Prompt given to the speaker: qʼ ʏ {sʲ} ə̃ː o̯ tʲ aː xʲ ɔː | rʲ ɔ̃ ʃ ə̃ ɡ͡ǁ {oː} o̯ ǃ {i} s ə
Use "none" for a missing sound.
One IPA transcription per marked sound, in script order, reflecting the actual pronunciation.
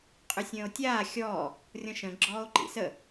sʲ, ɔː, ḭ

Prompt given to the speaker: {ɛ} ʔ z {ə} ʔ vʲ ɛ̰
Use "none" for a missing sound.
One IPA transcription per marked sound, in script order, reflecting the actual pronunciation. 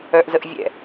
œ, ə

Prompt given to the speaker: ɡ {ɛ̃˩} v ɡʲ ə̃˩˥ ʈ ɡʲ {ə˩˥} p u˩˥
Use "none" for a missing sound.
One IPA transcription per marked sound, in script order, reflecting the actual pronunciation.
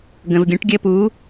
ə̃˩, ə˧

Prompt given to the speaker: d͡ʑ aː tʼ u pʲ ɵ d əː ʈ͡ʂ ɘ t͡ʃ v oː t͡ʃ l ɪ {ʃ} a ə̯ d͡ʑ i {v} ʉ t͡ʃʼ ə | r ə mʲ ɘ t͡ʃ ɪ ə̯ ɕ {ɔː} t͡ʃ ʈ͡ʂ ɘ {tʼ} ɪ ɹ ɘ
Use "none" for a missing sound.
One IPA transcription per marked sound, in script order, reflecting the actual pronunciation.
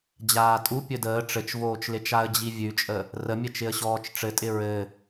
t͡ʃ, vʲ, ɔː, tʼ

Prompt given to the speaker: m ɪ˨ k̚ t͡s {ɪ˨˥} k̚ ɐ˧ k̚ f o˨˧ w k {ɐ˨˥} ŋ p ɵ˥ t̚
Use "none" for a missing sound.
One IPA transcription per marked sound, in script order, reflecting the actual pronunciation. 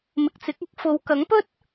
ɪ˨˥, ɐ˨˥

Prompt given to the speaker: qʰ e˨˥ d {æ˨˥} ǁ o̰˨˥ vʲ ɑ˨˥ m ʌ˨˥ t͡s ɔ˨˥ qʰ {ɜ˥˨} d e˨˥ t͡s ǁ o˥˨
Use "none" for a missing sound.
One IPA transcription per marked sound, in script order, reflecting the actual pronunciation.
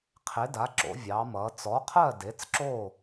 a˨˥, ɜ˥˨

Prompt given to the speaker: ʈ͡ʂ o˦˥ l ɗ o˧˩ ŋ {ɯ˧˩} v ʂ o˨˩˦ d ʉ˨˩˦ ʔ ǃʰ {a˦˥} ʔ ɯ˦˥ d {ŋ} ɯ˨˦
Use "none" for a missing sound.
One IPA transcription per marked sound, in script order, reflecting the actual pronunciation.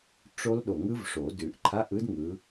ɯ˦˥, a˧˥˧, ŋ

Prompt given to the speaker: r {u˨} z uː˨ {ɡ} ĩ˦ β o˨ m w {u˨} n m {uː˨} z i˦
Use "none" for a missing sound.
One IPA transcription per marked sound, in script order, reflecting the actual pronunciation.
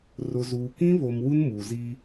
ʊ˨, k, u˦, uː˨

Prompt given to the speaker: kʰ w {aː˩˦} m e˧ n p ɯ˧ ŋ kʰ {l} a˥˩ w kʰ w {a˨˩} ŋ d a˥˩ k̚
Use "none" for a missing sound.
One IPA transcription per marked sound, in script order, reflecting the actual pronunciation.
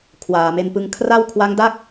aː˨˩, r, a˦˥

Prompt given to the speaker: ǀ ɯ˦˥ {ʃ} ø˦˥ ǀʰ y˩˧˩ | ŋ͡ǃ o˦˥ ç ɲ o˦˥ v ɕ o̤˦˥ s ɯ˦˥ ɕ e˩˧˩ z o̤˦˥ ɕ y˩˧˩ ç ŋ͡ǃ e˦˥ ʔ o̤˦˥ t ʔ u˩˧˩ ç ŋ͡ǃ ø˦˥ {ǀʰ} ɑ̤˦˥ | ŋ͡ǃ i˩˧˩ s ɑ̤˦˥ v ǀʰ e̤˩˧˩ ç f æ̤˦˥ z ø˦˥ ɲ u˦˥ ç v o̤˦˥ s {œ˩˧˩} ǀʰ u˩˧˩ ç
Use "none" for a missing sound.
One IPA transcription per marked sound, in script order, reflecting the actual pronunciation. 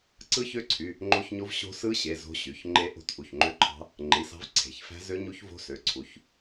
ç, ǃʰ, ø˩˧˩

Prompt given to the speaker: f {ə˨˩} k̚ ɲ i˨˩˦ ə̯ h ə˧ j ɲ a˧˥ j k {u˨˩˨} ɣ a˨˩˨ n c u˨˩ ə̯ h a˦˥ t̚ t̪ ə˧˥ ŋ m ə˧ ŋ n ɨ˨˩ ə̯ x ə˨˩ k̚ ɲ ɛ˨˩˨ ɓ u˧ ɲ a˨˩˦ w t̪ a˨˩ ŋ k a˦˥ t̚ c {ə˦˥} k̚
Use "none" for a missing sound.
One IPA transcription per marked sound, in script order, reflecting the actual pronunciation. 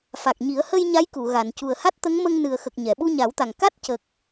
a˨˩, u˨˩˨, ə˨˩

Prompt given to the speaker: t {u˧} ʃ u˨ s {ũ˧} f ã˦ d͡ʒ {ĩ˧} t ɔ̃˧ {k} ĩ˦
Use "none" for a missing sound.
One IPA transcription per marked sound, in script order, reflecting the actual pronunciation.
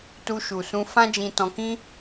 u˧, ũ˧, ĩ˧, k

